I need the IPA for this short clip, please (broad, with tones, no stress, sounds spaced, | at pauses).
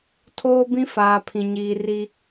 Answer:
tʰ oː˦ b ĩ˦ f aː˨ pʰ ĩ˨ ɲ iː˨ r i˦